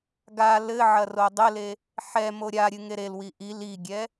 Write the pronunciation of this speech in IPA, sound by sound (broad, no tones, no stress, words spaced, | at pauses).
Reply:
ɡa lɘ ʕɐrodˤɘle | ħɛ moɾʲaɾʲɨ ŋeɾelwi ʔi liɡʲɛ